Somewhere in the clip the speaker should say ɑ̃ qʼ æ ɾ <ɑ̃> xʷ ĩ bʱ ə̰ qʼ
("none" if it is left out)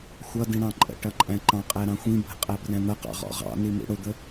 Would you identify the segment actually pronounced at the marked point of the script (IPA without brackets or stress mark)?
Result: ɑ̃